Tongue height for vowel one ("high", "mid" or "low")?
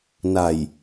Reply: low